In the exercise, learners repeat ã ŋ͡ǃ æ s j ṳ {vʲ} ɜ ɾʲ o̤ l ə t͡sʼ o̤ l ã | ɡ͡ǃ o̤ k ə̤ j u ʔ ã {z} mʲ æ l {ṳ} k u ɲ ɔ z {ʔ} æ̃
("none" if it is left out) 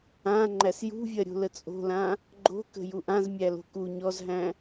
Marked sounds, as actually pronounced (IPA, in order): vʲ, z, o̤, ɦ

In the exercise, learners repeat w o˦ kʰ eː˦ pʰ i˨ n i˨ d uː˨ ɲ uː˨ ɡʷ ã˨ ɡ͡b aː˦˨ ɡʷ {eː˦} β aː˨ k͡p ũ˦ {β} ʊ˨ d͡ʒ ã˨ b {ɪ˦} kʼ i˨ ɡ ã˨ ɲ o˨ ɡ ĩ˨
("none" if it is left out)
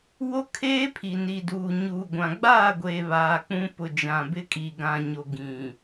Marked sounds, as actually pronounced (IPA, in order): eː˨, p, ɪ˦

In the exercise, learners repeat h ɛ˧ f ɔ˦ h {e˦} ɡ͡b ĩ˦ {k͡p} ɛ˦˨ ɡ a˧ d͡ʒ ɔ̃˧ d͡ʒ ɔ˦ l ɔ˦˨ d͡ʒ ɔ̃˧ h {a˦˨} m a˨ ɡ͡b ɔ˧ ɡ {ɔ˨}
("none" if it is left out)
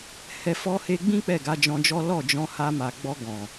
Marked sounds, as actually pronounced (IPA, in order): e˧, k͡p, a˧, ɔ̃˨

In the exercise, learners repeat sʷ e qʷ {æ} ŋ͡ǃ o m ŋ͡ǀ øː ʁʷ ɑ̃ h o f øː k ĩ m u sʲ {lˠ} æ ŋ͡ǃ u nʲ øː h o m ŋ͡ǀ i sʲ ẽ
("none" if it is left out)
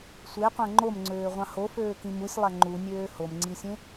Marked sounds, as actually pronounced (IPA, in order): æ̃, lˠ

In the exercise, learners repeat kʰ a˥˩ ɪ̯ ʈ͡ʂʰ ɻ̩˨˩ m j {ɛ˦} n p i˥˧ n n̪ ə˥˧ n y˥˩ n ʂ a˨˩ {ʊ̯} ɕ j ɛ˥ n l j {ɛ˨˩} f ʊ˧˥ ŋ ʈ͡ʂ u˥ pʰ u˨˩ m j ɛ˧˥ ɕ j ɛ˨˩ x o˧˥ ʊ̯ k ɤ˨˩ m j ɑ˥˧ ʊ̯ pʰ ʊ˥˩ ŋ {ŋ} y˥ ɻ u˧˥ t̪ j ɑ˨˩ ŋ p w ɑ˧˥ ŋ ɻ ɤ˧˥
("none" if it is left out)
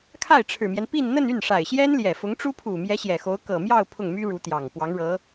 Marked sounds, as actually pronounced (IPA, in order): ɛ˦, ɪ̯, ɛ˨˩, m

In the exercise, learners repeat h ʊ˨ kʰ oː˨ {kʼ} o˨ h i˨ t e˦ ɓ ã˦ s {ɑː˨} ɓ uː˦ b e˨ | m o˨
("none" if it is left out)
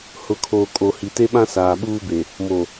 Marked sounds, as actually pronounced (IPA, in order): kʼ, aː˨

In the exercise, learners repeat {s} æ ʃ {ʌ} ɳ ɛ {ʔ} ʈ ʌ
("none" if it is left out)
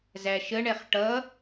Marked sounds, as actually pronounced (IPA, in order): z, ə, χ

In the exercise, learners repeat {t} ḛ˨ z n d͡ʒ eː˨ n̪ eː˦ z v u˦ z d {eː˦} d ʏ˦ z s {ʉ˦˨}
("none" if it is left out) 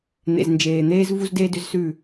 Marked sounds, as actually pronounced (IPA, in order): n̪, eː˦, ʉ˦˨

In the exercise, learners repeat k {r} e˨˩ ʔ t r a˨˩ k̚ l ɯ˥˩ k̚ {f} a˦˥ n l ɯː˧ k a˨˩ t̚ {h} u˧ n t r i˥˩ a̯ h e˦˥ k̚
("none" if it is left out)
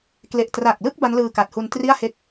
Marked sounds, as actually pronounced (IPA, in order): l, b, h

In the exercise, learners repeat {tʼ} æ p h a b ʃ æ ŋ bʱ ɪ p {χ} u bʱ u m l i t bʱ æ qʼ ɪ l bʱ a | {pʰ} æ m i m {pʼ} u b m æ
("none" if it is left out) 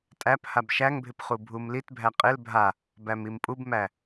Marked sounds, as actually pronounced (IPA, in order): tʼ, χ, b, pʼ

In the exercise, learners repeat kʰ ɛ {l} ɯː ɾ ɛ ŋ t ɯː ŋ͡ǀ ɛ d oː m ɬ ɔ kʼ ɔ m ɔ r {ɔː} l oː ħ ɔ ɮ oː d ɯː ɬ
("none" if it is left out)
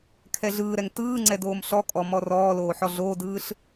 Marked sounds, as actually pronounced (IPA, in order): ɮ, ɔː

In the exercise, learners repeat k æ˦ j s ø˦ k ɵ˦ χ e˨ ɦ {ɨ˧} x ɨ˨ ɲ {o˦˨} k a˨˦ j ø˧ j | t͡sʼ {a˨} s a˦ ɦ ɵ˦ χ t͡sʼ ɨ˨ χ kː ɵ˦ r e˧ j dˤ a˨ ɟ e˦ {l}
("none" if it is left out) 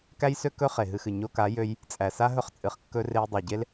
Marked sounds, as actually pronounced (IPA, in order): ɨ˧, o˧, æ˨, l

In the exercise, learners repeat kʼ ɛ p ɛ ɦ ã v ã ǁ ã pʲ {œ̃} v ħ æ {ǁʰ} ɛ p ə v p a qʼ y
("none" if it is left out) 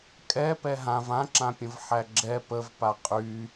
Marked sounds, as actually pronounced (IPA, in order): ə̃, ɡ͡ǁ

